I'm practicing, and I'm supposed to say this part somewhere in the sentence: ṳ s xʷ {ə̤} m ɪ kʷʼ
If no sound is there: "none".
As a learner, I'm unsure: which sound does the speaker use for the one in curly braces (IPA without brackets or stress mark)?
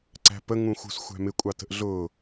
æ̤